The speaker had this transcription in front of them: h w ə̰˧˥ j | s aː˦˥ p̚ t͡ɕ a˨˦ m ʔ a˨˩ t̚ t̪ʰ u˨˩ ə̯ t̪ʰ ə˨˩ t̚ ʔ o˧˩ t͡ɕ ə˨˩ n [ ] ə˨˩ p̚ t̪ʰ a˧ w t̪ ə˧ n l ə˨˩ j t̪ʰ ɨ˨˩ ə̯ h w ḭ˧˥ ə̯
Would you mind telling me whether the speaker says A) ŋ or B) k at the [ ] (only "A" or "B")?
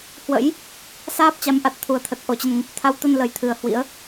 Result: A